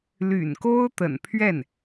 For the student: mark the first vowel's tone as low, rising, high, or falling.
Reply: low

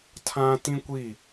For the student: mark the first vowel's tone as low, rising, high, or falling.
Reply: high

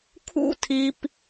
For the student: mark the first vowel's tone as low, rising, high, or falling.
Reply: high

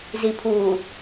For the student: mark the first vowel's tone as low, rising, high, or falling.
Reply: low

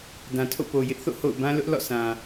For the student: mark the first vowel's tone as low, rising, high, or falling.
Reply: low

